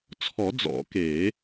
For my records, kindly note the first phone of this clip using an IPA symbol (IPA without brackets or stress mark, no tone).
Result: t͡sʰ